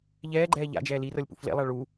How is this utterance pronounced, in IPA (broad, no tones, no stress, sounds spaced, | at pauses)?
ʎ ɛː ɡ͡ǃ ɛː ʎ a̰ d͡ʒ ɛː l i r ɤ lʲ p ṵ f l ḛ lˠ a ɭ u